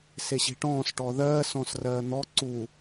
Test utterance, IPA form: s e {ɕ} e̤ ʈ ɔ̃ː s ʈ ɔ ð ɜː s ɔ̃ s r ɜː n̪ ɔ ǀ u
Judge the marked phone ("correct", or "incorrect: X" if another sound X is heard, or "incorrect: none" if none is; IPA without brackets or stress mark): correct